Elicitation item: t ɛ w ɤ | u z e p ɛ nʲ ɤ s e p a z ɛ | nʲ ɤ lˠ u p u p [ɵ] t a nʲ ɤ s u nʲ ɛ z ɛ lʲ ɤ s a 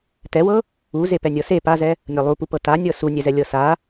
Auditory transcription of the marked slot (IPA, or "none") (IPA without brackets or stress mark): ɤ